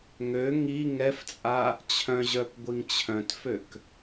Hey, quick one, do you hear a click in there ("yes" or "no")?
no